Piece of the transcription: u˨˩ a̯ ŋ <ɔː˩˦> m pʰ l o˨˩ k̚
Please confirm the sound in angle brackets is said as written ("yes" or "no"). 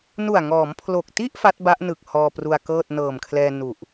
yes